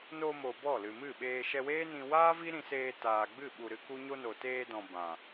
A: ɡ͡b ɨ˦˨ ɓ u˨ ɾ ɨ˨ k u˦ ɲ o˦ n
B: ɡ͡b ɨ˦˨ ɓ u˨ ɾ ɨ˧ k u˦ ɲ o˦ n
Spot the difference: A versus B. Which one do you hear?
B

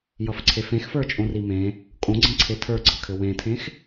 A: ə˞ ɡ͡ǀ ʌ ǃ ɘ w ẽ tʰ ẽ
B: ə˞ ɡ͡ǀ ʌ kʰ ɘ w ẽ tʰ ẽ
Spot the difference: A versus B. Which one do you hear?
B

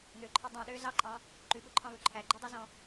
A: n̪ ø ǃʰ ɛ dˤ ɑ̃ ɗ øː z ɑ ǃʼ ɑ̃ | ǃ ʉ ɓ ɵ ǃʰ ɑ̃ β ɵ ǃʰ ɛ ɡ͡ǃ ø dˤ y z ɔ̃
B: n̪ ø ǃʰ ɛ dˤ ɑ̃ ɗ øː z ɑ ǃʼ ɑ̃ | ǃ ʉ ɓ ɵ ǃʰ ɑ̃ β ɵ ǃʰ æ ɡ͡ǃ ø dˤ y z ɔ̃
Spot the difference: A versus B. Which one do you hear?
B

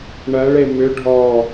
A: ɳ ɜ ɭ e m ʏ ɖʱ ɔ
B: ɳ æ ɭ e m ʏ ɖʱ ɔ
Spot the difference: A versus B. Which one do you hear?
A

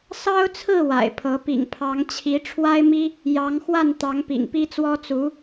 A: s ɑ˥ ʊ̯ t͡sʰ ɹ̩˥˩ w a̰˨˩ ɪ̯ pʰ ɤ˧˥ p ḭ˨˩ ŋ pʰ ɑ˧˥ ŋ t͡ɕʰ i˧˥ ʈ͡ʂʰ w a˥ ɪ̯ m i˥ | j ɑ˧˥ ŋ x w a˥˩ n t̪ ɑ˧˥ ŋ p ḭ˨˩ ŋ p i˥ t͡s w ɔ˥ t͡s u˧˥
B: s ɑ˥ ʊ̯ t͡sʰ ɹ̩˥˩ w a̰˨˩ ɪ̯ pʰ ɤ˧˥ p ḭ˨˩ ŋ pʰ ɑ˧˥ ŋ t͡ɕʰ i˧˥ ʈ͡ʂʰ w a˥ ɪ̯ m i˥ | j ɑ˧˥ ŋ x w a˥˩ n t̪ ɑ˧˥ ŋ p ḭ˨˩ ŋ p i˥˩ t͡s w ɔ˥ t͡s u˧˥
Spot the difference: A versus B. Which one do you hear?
A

